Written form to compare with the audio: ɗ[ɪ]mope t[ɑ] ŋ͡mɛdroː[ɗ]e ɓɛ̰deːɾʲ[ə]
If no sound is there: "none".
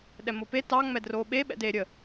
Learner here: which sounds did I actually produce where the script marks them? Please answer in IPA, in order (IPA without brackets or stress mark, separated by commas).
ɛ, ɑ, ɓ, ə